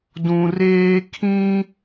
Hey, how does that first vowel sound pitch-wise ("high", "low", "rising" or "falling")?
low